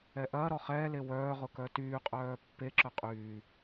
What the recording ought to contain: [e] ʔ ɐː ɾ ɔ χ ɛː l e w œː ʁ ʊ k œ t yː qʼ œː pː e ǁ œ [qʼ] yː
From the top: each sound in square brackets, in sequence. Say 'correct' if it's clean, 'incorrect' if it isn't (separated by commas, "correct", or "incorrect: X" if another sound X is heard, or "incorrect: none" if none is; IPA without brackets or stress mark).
incorrect: ɛ, correct